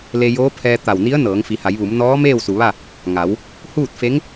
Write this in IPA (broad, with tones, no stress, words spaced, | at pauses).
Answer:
le˧joː˧˥pʰɛː˧ t̪a˧˩wni˧˥ə̯ nɤː˩˧ŋfi˩˧ha˩˧jʋu˩˧m nɔː˧˥ meː˥˨wsu˩ʋa˥˨ | ŋa˩˧w | huː˥˨t̚fe˧˥ŋ